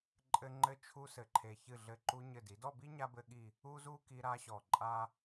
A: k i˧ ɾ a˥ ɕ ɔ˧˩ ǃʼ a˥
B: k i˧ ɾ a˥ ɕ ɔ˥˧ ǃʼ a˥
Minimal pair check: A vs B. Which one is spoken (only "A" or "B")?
A